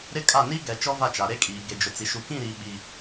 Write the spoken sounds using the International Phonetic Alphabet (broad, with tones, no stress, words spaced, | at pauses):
ɾɪ˦kʼa˦˨ ni˦ɡɛ˨ t͡ʃɔ˦va˦˨t͡ʃa˨ ɾe˦kʼiː˨ ɡe˨d͡ʒʊ˨t͡si˨ ʃu˨kĩ˦˨ɾiː˨ ɓi˨